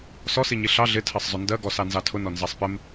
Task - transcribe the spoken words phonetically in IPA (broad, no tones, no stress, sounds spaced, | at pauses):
s ɔ s i ɲ i ɬ ɑ ɮ ɪ tʰ ɜ sˤ zˤ ʊ n d ɜ ɡ ɔ s ɑ n z ɑ tʰ ʊ n ɔ n z ɑ sˤ p ɪ m